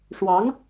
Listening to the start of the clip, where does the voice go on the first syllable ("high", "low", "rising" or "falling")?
rising